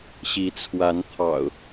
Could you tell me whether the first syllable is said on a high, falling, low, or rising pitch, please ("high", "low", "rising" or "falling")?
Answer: rising